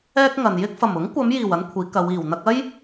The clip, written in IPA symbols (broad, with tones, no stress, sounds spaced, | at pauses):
ɛː˥ k̚ ŋ ɐ˨ n j ɪ˥ k̚ f ɐ˨˩ m ʊ˨˥ ŋ kʷ ɐ˨˧ m j iː˨˩ w ɐ˥ n kʷʰ iː˨˥ k ɐ˨˧ w iː˨˩ w n̪ ɐ˧ k̚ ɐ˥ j